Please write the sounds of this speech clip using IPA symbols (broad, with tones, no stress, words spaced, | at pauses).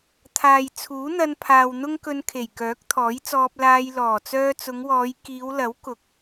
t̪ʰaː˨jt͡sʰuː˨˥n̪ɐ˧n pʰaː˨wn̪ʊ˥ŋkɵ˧n kʰe˨˩jkœː˨˥k̚t̪ʰɔː˨˥jt͡sɔː˧p̚ laː˧jlɔː˨˩ t͡sœː˧t͡sʊ˨˧ŋwɔː˨˧j kiː˨˧wlɐ˨˥w kʊ˨˥k̚